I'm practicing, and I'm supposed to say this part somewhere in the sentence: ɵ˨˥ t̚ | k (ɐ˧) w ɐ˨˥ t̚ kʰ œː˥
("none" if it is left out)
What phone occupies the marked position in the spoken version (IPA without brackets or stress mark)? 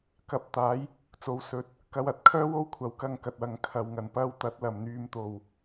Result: ɐ˧